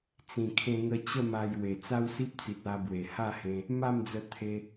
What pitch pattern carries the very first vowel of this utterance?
low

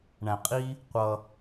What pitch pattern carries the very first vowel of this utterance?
low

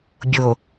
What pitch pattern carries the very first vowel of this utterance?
low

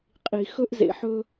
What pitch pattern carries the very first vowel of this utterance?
low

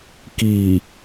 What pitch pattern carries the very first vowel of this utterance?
low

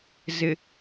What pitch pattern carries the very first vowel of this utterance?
low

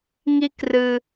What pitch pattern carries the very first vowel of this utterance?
high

